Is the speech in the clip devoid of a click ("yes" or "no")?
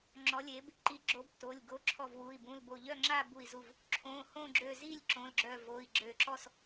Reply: no